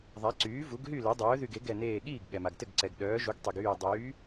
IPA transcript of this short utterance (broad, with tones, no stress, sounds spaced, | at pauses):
ðˤ a˩˥ ǀ yː˩˥ v u˩˥ ɡ ɦ y˥˩ l ɛ˩˥ dˤ œː˩˥ ð y˧˩ ɡ e˩˥ ɡ ɛ˧˩ n eː˧˩ ɠ iː˥˩ ɡ ɠ ɛ˩ m a˩ ɡ t ɘ˥˩ ɡ ǀ ɛ˩ ɡ ɗ œː˩˥ ʒ u˩˥ ɡ tˤ i˩ ɡ yː˧˩ dˤ yː˩˥